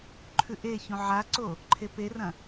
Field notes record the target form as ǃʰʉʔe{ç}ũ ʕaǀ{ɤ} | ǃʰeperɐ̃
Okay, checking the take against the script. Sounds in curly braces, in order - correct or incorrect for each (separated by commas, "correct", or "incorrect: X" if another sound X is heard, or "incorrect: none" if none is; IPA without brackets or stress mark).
correct, incorrect: o